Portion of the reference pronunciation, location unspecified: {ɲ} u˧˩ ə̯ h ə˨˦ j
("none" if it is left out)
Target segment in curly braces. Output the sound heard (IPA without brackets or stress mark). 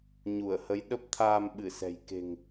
ɲ